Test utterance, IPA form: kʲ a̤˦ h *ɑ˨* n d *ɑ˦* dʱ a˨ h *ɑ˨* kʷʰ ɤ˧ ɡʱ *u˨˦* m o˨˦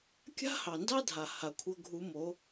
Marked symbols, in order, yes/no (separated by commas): yes, yes, no, yes